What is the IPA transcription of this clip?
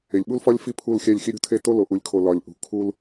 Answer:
e˨ lʲ ɓ u˦ l f ɒ˦ lʲ f i˦ pʰ u˦˨ l xʲ æ˦˨ lʲ x i˦ ɾʲ ṳ˦ tʰ e˦ t o˦ l o˨ ʔ u˨ lʲ kʰ o˨ l ɒ˨ lʲ ʔ ṳ˨ kʰ u˦ l

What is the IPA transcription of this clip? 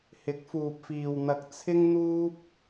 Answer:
h ɪ˨˥ k̚ f uː˨ p̚ f iː˨ w n̪ ɐ˧ k̚ t͡sʰ ɪ˥ ŋ n̪ uː˥ p̚

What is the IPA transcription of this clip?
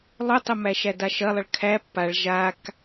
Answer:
lˠ o tˤ ə m æ ʃ æ d a ʃ ɐ lˠ ɐ ɭ kʰ æ pː a ɭ ʒ a k

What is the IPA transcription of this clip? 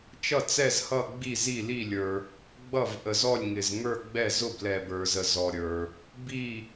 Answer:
t͡ʃ ʌ˦˨ t͡s ɛ˦˨ z h ʌ˦˨ ɡ͡b i˦˨ z i˦˨ l i˦˨ lʲ ə˞˨ | ɡ͡b ʌ˦˨ v ʔ ə˨ z ɔ˦˨ lʲ ŋ ɪ˨ z ŋ ə˞˦˨ ɡ͡b ɛ˦˨ z ʊ˦˨ b l ɛ˨ b ə˞˨ z ə˨ z ɔ˨ ɾʲ ə˞˨ | b i˦˨

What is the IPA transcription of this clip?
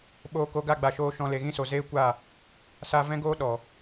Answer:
ɓ oː˧ k o˧ ɡ a˦˨ ɡ͡b a˨ ʃ oː˧ ʃ ɔ̃˧ l e˨ ɣ ĩ˦ s o˨ z eː˦ kʷ a˦˨ | s a˦ v ɛ̃˦ ɡ oː˦ ɗ ɔ˨

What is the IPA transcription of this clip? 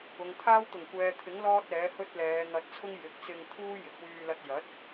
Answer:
ʊ˨ ŋ t̪ʰ aː˥ w t̪ ʊ˨˩ ŋ kʷ ɛː˨ t̪ʰ ɪ˨˥ ŋ l ɔː˥ t̚ ɛː˨˥ h ɵ˥ t̚ l ɛː˨˧ ŋ ɐ˧ t̚ t͡sʰ ʊ˥ ŋ j ɪ˨ k̚ t͡s ɪ˧ ŋ t̪ʰ uː˥ j ɪ˨ k̚ w yː˧ l ɐ˧ t̚ j ɐ˨˥ t̚

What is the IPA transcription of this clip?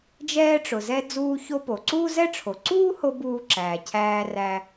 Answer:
d͡ʒ ɛː˧ ʈ͡ʂ ʊ˩ z ɛ˧ d͡z uː˧ ç o˧ p o˩ ǀ uː˥ z ɛ˥ ʈ͡ʂʰ o˩ ǀ uː˥ h o˧ b uː˧ ǁ æː˩ cʰ æː˧ r æ˧

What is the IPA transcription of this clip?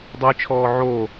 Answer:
dˤ o j t͡ʃʰ ɔː ʕ o

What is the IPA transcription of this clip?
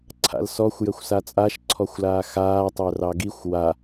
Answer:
ǀʰ a̰ l s ɔ xʷ j ə xʷ s a t͡sʼ a ʃ ǀʰ ɔ xʷ l aː x aː tˤ œ r ɑ ɡ i xʷ w a

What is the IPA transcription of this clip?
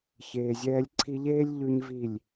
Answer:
ç eː˨ zʲ ɛː˧ lʲ ǀʰ i˧ ʎ eː˦ lʲ ʎ ʉ˦ ɲ v i˦˨ lʲ

